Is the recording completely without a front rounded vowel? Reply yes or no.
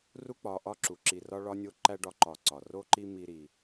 yes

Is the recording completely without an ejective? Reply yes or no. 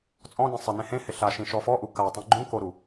no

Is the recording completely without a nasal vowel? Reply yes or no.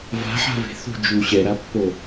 yes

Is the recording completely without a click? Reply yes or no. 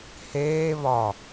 yes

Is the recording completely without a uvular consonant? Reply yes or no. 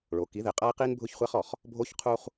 no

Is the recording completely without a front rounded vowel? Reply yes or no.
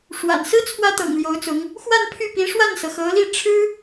no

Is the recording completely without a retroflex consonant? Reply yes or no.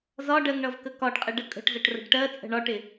no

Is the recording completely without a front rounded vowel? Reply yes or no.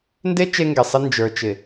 yes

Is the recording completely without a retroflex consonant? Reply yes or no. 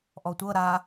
yes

